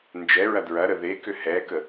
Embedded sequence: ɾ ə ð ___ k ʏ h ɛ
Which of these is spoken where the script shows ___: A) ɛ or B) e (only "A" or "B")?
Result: B